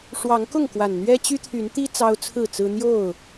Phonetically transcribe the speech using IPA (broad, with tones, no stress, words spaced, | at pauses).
ʂwɑ˨˦ŋkʊ˥˨ŋ kwa˨˩nn̪ɥɛ˦t͡ɕy˦t̪ʰy˨˦n t̪i˦ t͡sɑ˦ʊ̯t͡sʰɹ̩˥˨t͡sɹ̩˦ n̪jo˥˨ʊ̯